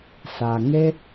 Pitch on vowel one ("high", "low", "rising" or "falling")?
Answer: low